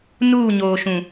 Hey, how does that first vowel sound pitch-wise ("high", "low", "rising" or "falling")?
falling